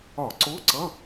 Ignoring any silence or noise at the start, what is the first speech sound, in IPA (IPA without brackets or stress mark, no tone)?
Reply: ɒ